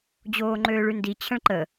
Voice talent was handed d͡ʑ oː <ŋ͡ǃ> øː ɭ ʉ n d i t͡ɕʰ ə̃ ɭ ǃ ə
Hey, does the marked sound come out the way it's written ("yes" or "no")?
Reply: yes